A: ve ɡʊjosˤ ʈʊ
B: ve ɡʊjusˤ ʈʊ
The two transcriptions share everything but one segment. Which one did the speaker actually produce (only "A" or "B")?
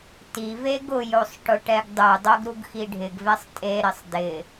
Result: A